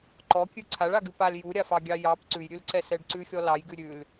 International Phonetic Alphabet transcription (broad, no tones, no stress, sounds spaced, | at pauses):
ǃ ɔ kʲ ʉ ǀʰ a ɭ a ɡ ʉ p a l j u ɾʲ a f ɑ ɡʲ ɑ j ɑ p ǀ ʉ j ɾʲ ʉ l ǀ ɛ s ɛ ɖ ǀ ʉ xʲ ɔ l ɑ j ɡ ʉ ɾʲ ʉ l